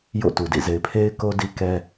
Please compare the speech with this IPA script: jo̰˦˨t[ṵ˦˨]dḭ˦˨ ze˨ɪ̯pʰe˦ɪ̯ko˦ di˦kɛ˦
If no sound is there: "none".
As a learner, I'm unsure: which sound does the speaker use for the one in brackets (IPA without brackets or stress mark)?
u˨